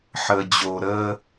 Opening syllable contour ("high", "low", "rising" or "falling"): low